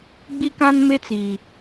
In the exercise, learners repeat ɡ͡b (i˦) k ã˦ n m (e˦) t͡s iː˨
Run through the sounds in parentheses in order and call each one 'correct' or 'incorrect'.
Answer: correct, correct

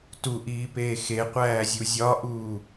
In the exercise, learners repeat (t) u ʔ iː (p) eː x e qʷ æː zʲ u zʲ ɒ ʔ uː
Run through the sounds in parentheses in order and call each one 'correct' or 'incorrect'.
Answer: correct, correct

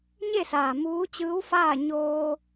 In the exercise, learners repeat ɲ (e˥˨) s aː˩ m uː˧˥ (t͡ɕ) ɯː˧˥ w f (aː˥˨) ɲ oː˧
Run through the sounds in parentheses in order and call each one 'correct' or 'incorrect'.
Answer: correct, correct, correct

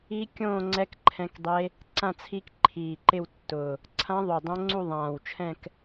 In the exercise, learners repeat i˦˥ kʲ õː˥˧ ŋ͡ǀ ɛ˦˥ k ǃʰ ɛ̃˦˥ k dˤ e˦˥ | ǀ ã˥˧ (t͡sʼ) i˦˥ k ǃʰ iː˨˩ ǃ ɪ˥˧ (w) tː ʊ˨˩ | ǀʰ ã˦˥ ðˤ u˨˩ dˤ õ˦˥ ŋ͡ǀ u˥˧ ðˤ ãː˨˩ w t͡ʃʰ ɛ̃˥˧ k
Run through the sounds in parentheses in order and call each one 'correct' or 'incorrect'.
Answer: incorrect: t͡sʰ, correct

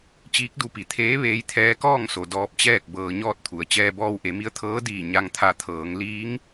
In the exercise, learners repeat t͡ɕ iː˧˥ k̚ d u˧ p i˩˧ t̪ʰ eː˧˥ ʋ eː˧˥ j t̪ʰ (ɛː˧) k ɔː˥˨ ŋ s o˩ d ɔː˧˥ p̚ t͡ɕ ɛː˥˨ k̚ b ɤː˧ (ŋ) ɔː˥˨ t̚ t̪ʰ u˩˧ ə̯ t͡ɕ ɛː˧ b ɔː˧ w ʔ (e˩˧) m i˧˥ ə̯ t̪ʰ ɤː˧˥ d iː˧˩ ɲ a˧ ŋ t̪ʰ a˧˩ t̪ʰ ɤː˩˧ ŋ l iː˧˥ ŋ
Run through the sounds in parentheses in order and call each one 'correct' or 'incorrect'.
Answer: incorrect: ɛː˧˥, incorrect: ɲ, correct

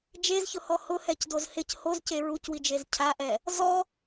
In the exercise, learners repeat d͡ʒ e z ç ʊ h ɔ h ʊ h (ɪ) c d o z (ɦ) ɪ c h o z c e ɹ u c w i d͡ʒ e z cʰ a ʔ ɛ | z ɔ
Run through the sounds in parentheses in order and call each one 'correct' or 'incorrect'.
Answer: incorrect: ɛ, incorrect: h

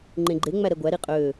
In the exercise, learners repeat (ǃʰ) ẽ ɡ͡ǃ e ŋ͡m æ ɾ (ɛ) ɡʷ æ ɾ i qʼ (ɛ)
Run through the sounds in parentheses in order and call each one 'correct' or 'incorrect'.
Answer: incorrect: ŋ͡ǃ, correct, incorrect: ø

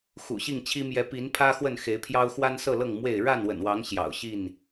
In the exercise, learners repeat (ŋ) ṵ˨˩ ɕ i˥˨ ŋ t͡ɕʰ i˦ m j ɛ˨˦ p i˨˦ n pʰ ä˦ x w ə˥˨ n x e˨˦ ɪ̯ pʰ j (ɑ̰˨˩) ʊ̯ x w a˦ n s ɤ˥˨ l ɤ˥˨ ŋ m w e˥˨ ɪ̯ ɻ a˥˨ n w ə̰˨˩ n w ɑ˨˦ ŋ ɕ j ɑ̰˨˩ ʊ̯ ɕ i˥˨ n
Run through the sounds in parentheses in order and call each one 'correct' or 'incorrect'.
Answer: incorrect: x, incorrect: ɑ˦

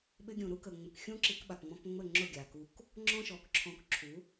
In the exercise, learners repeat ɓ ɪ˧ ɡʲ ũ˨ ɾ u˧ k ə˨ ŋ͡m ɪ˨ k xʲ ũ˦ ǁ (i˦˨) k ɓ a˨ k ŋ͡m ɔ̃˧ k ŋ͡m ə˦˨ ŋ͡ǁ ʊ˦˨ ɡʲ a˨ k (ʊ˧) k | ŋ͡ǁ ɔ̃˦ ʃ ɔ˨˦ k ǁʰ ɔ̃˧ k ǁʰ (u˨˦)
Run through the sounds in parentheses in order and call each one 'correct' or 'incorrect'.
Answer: incorrect: i˧, incorrect: u˧, correct

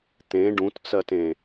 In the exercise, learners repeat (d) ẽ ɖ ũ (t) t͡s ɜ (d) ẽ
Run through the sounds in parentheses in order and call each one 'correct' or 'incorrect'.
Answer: incorrect: t̪, correct, incorrect: t

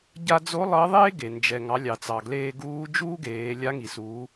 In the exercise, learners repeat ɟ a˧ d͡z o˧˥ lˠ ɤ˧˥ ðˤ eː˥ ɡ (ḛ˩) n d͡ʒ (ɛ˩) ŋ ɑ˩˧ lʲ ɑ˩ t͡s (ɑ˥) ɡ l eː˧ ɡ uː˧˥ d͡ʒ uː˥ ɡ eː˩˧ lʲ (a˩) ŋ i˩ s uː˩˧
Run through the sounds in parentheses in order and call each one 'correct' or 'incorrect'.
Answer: incorrect: e˩, correct, incorrect: ɑ˩, incorrect: a˧˥

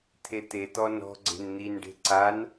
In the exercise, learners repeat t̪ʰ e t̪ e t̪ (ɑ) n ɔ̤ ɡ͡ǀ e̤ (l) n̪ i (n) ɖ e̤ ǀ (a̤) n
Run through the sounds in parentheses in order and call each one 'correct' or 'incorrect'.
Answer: incorrect: ɔ, incorrect: n, correct, incorrect: a

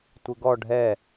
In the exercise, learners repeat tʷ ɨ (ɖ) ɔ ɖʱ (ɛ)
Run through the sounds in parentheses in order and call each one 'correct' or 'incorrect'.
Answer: incorrect: ɡ, correct

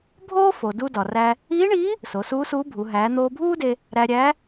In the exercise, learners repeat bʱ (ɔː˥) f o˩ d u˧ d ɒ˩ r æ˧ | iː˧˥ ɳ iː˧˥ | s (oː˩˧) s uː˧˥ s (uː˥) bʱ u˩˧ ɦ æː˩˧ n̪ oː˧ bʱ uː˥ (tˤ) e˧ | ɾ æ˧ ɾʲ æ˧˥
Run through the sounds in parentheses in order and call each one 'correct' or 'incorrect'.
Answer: incorrect: oː˥, incorrect: o˩˧, incorrect: uː˧˥, incorrect: d

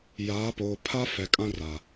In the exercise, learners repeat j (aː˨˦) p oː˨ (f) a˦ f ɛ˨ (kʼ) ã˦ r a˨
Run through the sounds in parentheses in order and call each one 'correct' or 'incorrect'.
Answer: correct, incorrect: pʰ, correct

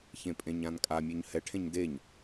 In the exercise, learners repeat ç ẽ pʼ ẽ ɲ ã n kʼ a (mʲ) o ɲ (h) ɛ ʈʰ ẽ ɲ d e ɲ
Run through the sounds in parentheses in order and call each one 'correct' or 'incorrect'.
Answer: correct, correct

